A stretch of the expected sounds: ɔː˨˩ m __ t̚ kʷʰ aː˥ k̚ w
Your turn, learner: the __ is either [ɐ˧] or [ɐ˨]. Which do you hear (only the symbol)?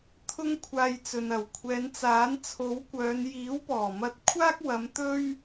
ɐ˧